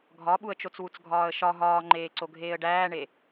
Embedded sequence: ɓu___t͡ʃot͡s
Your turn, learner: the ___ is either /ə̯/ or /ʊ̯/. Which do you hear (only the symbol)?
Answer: ə̯